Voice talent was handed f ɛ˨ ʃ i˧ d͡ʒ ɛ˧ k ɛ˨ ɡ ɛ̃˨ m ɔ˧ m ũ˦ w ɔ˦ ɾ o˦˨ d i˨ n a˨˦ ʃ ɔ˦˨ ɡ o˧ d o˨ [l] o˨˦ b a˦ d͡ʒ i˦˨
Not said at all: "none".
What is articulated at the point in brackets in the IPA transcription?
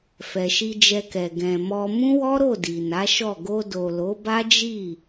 l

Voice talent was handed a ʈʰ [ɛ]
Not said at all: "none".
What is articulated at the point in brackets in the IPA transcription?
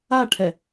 ɛ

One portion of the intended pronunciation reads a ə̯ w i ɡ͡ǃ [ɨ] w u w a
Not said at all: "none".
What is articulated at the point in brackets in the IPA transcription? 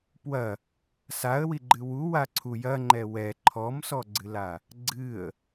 ɨ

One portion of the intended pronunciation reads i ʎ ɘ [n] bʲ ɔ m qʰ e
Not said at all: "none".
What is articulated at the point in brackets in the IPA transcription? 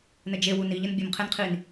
n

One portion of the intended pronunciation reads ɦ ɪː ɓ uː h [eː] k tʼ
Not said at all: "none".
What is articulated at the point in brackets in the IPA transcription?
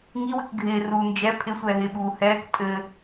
ɛː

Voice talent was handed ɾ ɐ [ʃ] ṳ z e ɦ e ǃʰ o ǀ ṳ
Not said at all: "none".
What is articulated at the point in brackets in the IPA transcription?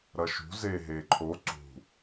ʃ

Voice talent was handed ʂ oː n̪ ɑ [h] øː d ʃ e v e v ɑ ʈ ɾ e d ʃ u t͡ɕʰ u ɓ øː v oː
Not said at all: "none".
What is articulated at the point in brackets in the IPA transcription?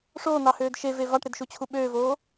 h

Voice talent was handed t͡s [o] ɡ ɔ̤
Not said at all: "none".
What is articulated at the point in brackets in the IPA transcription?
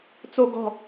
o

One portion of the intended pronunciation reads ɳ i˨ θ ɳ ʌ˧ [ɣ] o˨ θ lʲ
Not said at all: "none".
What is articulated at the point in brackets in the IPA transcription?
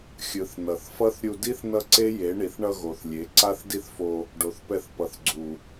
ɣ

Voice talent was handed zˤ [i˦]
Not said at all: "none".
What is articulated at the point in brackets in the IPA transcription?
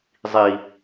i˦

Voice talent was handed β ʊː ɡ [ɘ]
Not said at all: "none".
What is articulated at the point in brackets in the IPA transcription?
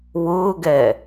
ɛ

